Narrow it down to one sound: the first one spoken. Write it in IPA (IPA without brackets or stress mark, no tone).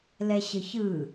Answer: l